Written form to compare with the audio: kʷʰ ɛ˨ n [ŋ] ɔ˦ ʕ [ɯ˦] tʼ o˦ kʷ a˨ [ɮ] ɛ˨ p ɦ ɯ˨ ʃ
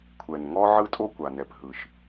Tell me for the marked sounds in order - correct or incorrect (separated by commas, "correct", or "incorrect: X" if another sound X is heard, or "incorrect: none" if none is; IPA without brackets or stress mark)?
correct, correct, incorrect: n